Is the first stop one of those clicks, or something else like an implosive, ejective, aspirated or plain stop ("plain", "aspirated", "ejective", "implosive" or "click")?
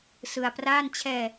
plain